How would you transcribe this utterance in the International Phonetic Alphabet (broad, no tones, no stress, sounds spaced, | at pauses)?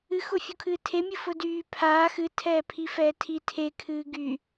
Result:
ɨ x ʊ fʲ u kʰ ɨː tʰ e mʲ ɨ f ʊ d yː pʰ aː x ɨ tʰ ɛː pʰ i f ɛː tʰ i tʰ e kʰ ɨː ɡ y